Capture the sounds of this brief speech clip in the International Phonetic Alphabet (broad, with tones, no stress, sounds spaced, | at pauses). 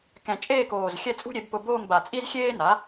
k ɛ̃˨˩ t͡ʃʼ eː˥˧ k oː˨˩ z xʲ ɛ˥˧ t͡sʼ ṳ˥ ɾʲ e˩˥ b p ʊ˧ b oː˥˧ ŋ b a˨˩ t͡sʼ i˥ z xʲ eː˥ n a˩˥